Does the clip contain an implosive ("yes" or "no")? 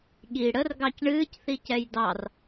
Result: yes